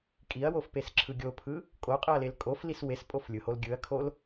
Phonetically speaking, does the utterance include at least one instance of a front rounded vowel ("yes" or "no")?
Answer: no